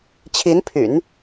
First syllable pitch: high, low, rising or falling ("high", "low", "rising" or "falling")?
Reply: rising